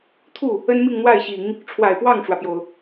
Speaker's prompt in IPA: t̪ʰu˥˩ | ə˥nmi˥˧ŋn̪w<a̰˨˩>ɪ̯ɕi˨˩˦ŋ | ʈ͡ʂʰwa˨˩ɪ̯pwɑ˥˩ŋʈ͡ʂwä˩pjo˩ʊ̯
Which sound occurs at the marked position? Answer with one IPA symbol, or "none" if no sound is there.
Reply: a˥˩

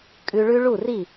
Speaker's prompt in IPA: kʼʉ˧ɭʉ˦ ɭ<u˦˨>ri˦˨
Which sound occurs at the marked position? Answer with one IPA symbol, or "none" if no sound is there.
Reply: u˦˨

